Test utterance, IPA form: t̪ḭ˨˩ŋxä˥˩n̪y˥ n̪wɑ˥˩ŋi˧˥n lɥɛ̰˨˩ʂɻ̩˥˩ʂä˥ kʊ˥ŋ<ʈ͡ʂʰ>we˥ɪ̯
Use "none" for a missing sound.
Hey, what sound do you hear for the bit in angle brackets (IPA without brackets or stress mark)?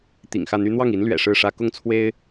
t͡sʰ